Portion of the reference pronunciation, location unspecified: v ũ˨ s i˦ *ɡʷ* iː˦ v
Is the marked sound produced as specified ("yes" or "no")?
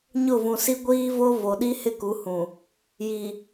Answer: yes